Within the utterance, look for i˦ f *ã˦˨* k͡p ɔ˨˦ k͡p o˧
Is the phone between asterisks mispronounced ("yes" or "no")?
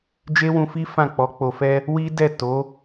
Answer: no